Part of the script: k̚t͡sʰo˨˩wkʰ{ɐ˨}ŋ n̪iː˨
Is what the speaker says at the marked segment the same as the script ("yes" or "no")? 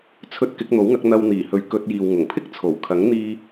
no